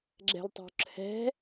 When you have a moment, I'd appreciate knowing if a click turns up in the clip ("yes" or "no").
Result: yes